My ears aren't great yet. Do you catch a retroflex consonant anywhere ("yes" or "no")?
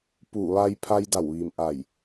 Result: no